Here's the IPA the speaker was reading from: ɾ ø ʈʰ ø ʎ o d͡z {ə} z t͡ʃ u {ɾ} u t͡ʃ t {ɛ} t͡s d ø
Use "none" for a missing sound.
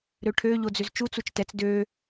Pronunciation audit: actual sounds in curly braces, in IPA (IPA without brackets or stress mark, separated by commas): ø, t͡s, ɛ